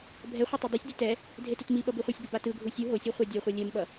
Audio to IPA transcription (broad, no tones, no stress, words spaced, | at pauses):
bʱɛχʷʌ tˤodˤusʲdʲu tɛ | dʱetutmiɓʌ biχʷisʲbʌ batɯɡʱu sʲu ɦosʲo χʷadʲɛχʷɛ lʲɛmɓʌ